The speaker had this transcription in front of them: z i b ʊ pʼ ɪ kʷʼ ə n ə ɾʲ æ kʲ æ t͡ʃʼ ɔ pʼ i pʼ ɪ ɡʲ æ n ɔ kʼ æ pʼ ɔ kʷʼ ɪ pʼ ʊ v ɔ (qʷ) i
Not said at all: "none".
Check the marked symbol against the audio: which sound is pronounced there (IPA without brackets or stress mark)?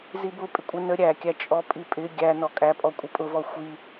xʷ